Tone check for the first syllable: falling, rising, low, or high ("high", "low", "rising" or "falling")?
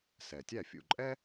low